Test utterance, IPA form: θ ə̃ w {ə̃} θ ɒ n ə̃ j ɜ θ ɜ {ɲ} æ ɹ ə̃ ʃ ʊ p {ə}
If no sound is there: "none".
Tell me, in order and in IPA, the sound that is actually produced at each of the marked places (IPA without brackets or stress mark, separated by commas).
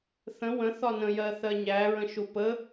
ə̃, ɲ, ə